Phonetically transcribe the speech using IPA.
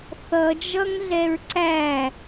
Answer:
θ ʌ d͡ʒ ʌ ŋ ɮ ɛ ɹ ǀ æ

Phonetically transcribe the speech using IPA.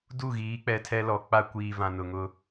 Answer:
d u˦˨ ɣ iː˨˦ k͡p ɛ˨ tʰ ɛ˦ l ɔ˨ k͡p a˦ kʷ iː˨ v ã˨ n ʊ˨ ŋ ʊ˦

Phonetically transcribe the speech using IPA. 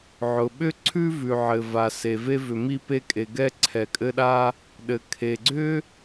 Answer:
ʕ ʊ˩ ɓ ʏ˥ ǀʰ ʉ˥ v ʉ˩ ʕ ɘ˩ v a˩ s e˩ v e˧ v ʏ˩ m i˧ p e˧ kʼ e˩ ɡ ɛ˧ ǀʰ ɛ˩ kʼ ɘ˧ ɗ a˧ | ɗ ɘ˩ kʰ e˩ ɡ͡ǀ ʏ˥

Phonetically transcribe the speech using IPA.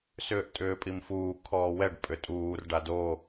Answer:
s ʏː ʔ tʼ ʏː pʼ i m f uː kʰ ɔː w ɛ ɖ pʼ ʏ tʼ uː r ɖ a d o

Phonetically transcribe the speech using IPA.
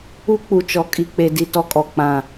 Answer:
u˦ k͡p u˨ t͡ʃ ɔ˨ kʼ i˨ k͡p e˨ d i˨ t ɔ˦ kʼ ɔ˨ k͡p ã˦˨

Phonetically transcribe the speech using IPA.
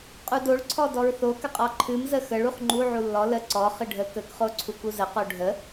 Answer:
qʼ u d o ɭ ǀʰ ɔ d ɔ ɹ θ o k ə qʼ ɔ ǃʰ ɨ m z ə x ə ɭ u χ ŋ͡ǃ u ʕ u lː ɔ l ə ǀ ɔ χ ɨ ɖʱ ə k ə k χ o ǀʰ u k u z ə q o ɖʱ ə

